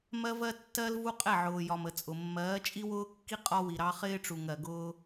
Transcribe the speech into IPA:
m ɜ˦ v ɜ˦ tː ɜ˦ l v u˦ qʼ ɛ˦˨ ʕ ʊː˨ j ɒ˨ m ə˨ t͡sʼ ʊ˨ mː ɜː˨˦ t͡ʃʼ i˦ w ʊː˦ kː i˦ qʼ ɒ˦ w i˨ ɾ ɑ˦ χ ɪː˦ ʈ͡ʂ u˨ ŋ ɜ˨ ɡ ʊː˦

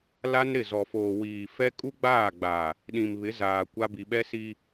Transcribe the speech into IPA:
l a˦ n ɾ ɪ˦˨ z ɔ˨ f oː˨ w iː˨ f ɛ˦ kʼ u˦ ɡ͡b aː˦˨ ɡ͡b a˨ | ɗ ĩ˨ m β ɪ˨˦ z aː˨ kʷ a˦ b i˨ ɓ ɛ˦ s i˦

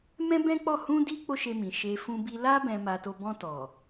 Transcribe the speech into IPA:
m ɛ̃˦ b ɛ̃˦ k͡p ɔ˦˨ h ũ˧ d i˧ k͡p o˦ ʃ e˧ m ĩ˨ ʃ e˨ f ũ˧ b i˧ l a˦ b ɛ̃˧ m a˧ t o˧ b ɔ̃˧ t ɔ˨

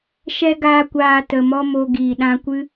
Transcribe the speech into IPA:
ʃ ɛ˦ ɡ aː˦ kʷ aː˧ t ə˨ m ɔ˦ m o˧ ɡ iː˨ ɗ ã˧ kʷ ɨ˦

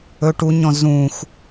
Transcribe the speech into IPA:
ɵ ʈ u ɲ ɔ̃ z ũ x

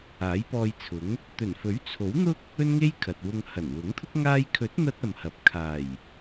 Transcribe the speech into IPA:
aː˨˥ j p ɔː˧ j t͡sʰ ʊ˨˥ ŋ | t̪ ɵ˨˩ n f ɵ˨˥ ɥ t͡sʰ o˨˥ w n̪ ʊ˥ k̚ | ɵ˥ n ŋ e˥ j kʰ ɐ˨ t̚ w ʊ˧ ŋ h ɐ˨˩ n w ʊ˨˥ ŋ t̪ʰ ʊ˥ k̚ ŋ aː˧ j kʰ ɵ˨˥ t̚ n̪ ɐ˥ t̚ ɐ˨ m h ɐ˨ p̚ kʰ aː˨˩ j

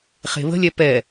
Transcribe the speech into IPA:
χ e̤ β ə̤ lʲ ɛ p ɛ

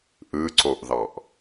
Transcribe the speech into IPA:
ʔ ɯ ǀ o ʔ ð ɑ ʔ

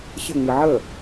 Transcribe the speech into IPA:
ɕ ɪ ŋ͡m i ʕ ə

